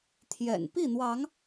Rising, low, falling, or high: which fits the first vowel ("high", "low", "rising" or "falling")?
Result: low